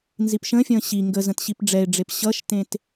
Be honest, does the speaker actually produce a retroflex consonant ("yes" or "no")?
yes